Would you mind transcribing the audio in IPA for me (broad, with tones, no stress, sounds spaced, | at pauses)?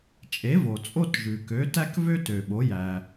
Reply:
t͡ʃʼ e˩˥ v o˩ t͡sʼ o˥ t ʒ ʉ˩ k ø˩˥ t æ˥ k v ø˥ t ø˩ ɓ o˩˥ j æ˩